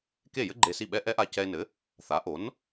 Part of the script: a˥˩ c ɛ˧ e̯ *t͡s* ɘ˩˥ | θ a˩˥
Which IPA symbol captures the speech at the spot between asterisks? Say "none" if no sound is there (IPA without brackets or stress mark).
n